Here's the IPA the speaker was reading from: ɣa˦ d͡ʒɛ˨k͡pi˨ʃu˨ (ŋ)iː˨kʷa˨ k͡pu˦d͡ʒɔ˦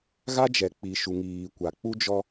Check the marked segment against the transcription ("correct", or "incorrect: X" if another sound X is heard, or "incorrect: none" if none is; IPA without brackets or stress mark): correct